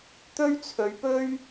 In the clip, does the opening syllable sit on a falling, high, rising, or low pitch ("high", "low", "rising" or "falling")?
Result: high